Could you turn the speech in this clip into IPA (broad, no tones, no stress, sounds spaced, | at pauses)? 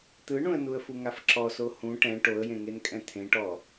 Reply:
t̪ ɯ ɳ ũ ə̯ n u ə̯ f u ŋ a f ǁ ɔ s o h ũ ʈ ɛ̃ ʈ o ə̯ j ẽ ŋ e n kʼ ɛ̃ t̪ʰ ẽ ʈ ɔ